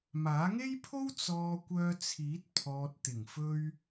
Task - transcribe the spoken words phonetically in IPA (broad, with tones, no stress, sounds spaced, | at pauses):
m aː˨˥ ŋ e˥ j pʰ o˥ w t͡s ɔː˧ kʷ œː˧ t͡sʰ iː˨˥ t̚ pʰ ɔː˨ t̚ t̪ ɪ˨˩ ŋ f ɵ˧ ɥ